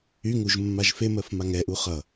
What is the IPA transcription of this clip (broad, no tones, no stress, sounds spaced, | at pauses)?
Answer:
y ŋ u ʒ mː a ʒ f e m ɜ f m a ŋ ɛ ʔ u χ ʌ